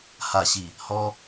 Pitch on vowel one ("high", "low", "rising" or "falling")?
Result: low